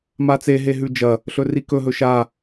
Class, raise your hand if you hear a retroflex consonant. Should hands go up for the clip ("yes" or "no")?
no